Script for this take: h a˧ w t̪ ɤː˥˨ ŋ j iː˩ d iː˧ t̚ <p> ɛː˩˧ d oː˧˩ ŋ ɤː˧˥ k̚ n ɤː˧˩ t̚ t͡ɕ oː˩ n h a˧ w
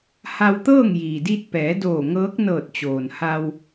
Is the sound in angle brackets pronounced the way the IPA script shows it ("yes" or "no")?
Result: yes